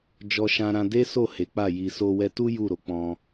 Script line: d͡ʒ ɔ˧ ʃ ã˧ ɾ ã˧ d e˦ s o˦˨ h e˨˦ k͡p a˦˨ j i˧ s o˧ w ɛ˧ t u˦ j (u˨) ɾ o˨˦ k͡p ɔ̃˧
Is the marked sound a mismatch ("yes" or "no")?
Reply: yes